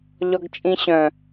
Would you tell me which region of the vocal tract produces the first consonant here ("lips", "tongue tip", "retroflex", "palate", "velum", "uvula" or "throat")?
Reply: palate